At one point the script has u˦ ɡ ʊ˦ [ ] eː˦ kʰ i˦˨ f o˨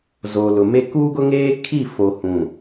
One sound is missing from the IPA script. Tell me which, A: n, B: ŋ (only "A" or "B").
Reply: B